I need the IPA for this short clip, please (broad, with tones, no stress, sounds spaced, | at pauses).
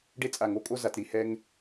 ɖ e˥ t͡sʼ a˧˩ ŋ o˥˧ kʼ o˥ z a˩˧ t ɾ i˧ h ɛ˥ ŋ